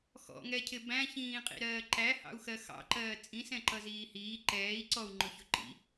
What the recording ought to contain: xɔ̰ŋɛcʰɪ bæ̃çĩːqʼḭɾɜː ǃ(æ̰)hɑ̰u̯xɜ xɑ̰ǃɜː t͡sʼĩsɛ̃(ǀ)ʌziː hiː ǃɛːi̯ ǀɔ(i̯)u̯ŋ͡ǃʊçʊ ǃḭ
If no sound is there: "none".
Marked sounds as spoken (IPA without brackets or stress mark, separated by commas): æ, ǃ, none